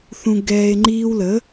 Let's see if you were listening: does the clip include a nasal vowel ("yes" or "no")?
yes